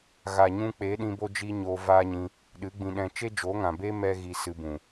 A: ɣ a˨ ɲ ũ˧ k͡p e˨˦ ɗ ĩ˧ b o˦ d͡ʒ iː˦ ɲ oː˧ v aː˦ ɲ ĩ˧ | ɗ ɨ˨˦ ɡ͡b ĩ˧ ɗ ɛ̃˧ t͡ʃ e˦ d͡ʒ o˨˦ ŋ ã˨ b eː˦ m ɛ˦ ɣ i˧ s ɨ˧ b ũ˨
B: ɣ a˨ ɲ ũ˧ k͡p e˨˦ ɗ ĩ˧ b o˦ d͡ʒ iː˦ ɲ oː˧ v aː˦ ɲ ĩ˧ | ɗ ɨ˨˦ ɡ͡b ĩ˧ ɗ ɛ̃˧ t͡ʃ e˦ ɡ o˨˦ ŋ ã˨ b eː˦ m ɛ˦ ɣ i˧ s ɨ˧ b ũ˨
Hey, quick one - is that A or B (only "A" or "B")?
A